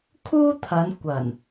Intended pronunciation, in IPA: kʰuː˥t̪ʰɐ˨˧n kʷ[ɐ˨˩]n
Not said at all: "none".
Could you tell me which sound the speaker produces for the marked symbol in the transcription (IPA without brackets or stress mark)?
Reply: ɐ˨˩